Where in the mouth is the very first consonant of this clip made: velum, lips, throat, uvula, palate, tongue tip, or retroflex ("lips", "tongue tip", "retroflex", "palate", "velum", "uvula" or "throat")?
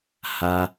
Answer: throat